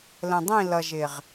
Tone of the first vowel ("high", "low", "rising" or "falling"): low